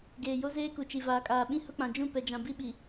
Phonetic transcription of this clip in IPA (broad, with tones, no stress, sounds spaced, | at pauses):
ɡ eː˨ j o˦ z eː˦ k u˨ t͡ʃ i˨ v aː˨ kʼ aː˨ ɓ ĩ˦ h ʊ˦ k͡p ã˨ d͡ʒ ũ˦˨ p ɛ˨ d͡ʒ ã˨ b i˦ ɓ i˨